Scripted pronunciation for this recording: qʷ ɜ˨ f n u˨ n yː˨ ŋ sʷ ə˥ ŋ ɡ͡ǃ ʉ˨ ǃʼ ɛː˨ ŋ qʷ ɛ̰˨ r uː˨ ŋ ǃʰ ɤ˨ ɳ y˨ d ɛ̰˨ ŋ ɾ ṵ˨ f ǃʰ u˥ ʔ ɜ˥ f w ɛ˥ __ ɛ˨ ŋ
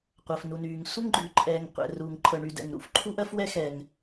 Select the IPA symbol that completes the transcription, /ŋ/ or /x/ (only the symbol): x